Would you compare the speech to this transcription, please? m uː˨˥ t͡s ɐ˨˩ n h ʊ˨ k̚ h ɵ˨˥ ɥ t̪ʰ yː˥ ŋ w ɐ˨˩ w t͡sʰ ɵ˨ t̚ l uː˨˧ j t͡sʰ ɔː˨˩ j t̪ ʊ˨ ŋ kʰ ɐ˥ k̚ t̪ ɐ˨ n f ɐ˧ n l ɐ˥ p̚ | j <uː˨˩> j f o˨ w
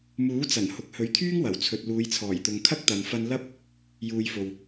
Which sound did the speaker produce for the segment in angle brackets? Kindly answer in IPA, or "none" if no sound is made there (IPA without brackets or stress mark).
uː˨